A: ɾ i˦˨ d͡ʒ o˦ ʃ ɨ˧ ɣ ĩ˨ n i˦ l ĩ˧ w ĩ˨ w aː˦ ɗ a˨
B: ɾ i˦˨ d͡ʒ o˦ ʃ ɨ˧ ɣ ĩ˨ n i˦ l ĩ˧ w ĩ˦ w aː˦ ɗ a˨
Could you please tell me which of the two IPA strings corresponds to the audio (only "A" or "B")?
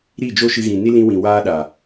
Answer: A